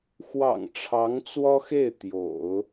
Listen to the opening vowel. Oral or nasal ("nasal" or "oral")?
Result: oral